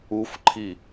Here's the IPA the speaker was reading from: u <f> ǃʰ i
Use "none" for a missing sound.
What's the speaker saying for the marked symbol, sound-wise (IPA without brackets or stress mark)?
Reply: f